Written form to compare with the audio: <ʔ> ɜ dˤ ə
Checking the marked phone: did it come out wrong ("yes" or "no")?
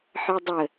yes